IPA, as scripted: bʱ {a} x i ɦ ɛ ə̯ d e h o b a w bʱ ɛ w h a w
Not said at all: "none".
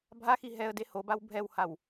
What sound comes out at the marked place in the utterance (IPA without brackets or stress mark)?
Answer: a